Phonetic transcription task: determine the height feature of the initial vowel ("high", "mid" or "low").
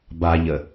low